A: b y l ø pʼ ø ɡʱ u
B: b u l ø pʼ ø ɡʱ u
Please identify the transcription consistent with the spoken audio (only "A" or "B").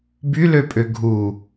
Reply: A